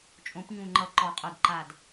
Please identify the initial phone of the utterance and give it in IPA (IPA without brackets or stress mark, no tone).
t͡ʃʼ